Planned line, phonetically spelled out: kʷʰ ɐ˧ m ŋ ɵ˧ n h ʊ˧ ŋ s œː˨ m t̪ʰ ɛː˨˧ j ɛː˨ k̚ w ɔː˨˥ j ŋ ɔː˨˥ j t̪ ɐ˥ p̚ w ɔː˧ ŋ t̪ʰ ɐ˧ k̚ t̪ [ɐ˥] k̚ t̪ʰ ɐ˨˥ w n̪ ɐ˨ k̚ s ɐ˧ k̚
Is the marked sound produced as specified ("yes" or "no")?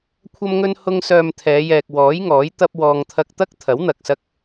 yes